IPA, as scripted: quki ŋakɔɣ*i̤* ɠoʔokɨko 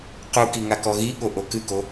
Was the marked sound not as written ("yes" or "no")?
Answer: yes